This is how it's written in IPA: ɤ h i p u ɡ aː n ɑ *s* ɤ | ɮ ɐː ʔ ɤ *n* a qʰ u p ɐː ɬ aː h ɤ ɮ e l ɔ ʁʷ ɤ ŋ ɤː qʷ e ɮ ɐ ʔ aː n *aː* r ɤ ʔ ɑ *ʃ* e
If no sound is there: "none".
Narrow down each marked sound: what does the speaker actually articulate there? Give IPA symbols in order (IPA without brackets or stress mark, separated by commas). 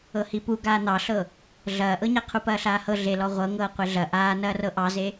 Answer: ɬ, ɲ, ɐː, z